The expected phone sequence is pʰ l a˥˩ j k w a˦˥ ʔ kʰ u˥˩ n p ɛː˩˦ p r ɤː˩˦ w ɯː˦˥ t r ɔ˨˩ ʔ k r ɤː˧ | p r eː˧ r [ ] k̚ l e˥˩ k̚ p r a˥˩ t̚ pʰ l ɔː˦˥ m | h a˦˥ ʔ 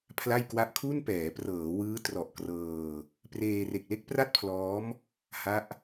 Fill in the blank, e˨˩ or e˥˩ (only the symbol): e˨˩